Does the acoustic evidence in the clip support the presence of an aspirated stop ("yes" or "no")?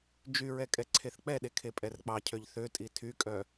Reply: yes